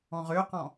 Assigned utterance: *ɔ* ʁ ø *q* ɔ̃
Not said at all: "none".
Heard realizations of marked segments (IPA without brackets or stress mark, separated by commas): ɔ̃, q